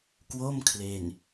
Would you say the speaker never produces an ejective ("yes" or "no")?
yes